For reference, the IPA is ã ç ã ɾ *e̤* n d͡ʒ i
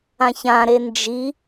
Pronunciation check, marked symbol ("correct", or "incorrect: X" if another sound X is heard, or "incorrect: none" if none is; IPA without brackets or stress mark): incorrect: e